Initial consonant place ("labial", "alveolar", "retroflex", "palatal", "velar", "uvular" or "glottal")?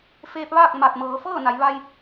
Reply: labial